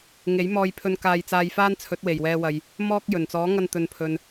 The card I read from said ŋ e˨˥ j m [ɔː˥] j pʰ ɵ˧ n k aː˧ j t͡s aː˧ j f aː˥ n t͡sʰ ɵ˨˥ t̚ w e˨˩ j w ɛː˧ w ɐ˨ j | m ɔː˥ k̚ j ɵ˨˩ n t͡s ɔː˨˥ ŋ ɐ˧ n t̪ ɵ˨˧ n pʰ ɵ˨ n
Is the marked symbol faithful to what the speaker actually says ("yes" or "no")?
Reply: no